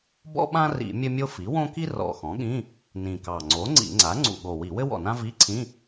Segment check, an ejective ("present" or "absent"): absent